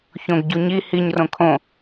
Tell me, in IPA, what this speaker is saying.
ç õ ɡ ɟ u ɲ i h i ɲ r õ kʰ õ

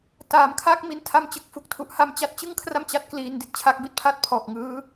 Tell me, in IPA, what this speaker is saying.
t aː˩˦ m kʰ aː˦˥ k̚ m i˦˥ n tʰ a˥˩ m t͡ɕ ɯ˨˩ k̚ f u˥˩ k̚ tʰ u˦˥ ʔ h a˧ m t͡ɕ a˦˥ t̚ t͡ɕ ɯ˥˩ ŋ kʰ r a˥˩ m t͡ɕ a˦˥ t̚ k l iː˧ n d i˥˩ t̚ t͡ɕʰ a˥˩ k̚ b i˥˩ t̚ pʰ a˥˩ t̚ pʰ ɔː˨˩ k̚ ŋ ɯː˦˥

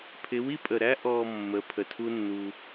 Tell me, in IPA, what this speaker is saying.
pʰ ɪ˨˦ w i˦ pʼ ə˨ ɾ æ˦ ʔ ɔ˨ mː ə˨˦ pʰ ə˨ tʰ u˦ nː u˧

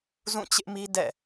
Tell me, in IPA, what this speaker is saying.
z ũ˦˨ t͡ɕ ɪ˦ ʔ m i˦ d ɛ̰˦˨

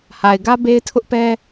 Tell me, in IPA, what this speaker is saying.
h a˨ ɪ̯ ɡ ä˦ b e˦ ɪ̯ tʰ ʊ˦ ʔ p ɛ˦

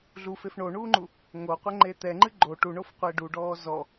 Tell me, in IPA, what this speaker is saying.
ɮ u f e f ɳ o ɳ uː ŋ͡ǃ u | ŋ o qʷ ɛ ŋ͡ǃ e t̪ ɛ ŋ͡ǃ ɨ ɡ͡ǃ o ʈ u ɳ o f qʷ e ɖ u ɖ ɔː z ɔ

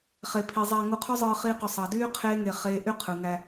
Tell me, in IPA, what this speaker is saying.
χ e˨ pʰ i˨ zˤ æ˧ ŋ u˧ qʰ y˦ zˤ ɯː˧ χ iː˦ q o˧ sˤ ɑ˨ d yː˦ qʰ eː˦ ŋ e˧ χ eː˦ ʔ y˦ qʰ ɯ˨ ŋ æ˧

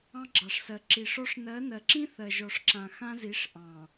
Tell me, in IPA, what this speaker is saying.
ɑ̃˦ ɡ͡ǁ ɑ˨ ʂ s ɜ˨ ǁ i˨ ʂ ɔ˦ ʂ n ɜ˨˦ n ɜ˨ ǁ ĩ˦ θ ɜ˨ ʒ ɔ˨ ʂ ǁ ã˨ x ã˦ z i˨˦ ʂ ʔ ɑ̃˨

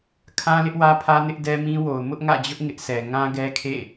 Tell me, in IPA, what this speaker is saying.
kʰ ã˦ l ɪ˦ ʔ w ä˦ pʰ ä˦ n ɪ˦ ʔ d ɛ˦ m ĩ˦ w o˨ ʊ̯ m ʊ˦ ʔ ŋ ä̰˦˨ d͡ʑ ʊ˦ ʔ ŋ ɪ˦ ʔ s ɛ˨ ŋ ã˦ ɡ ɛ˦ kʰ ḛ˦˨

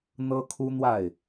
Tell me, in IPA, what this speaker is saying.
n̪ ɤ˥ kʰ u˥ n̪ w a˥˩ ɪ̯

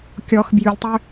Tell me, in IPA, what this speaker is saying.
kʲ ɔ x b j ʉ lʲ tˤ ø

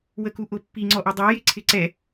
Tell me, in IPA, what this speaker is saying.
w ə k u ʔ ʊ pː i ŋ͡ǀ ɔ ʔ ʊ dˤ ɑ j ɪ ǀʰ ɪ ǀ ɛ

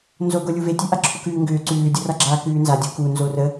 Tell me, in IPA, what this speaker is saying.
n z o ɡ o lʲ u v e tʲ ʉ ʔ a ǁʰ u k ʉː ŋ ɡ ʏː ǀ ʉː dʲ o r a ɡ͡ǁ aː k ʉː n z a dʲ u k u n z o r ə

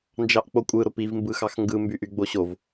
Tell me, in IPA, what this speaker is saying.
n d͡ʒ ɑ ʔ k͡p o kʷʼ ɯ ɾ o p i v m b ɯ x ɑ x ŋ ɡ ɯ m b y ʔ y ɡ͡b o ɕ o v

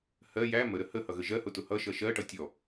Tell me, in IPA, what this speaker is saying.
h ɜ j æ m ə ɾ ə h ə h ʌ ɣ ə ʒ ɜ h ʊ t ʊ h ʌ ʃ ʌ ʃ ɜ ʈ ʌ tʲ ɔ

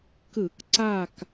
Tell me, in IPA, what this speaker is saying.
k ɯ˧˩˧ k ǀ a˦˨ k

